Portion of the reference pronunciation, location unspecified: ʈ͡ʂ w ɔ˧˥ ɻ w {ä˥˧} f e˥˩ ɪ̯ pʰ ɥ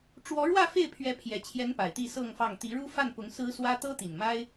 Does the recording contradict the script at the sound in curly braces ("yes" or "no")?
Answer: no